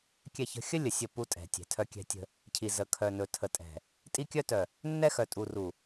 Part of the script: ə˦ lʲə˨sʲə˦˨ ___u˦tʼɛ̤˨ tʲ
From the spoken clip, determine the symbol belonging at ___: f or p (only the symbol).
p